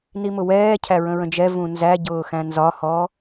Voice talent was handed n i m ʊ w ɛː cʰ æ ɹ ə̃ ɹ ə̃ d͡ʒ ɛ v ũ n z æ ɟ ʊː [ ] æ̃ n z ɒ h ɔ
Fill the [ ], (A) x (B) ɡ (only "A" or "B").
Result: A